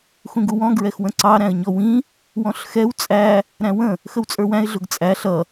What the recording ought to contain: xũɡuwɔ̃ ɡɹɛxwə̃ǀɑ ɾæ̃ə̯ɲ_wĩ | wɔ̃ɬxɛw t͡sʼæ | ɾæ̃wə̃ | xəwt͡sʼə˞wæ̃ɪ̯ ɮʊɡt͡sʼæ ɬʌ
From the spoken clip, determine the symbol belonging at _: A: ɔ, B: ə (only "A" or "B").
A